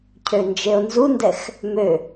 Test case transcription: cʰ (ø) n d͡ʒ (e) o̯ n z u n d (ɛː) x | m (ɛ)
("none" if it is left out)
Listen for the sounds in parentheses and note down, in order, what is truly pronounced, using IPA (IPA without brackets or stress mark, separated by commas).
ø, e, ɛ, ø